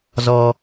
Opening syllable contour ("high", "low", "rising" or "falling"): high